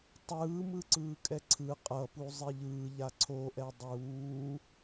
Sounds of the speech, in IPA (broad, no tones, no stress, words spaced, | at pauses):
tˤɯːmɯǀɯːkʼɛ ǀʰɯ qʼʌpu zˤeʎɯːʎa ǀʰoʔɛ dˤuː